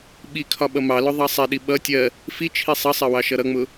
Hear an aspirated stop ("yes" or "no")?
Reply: yes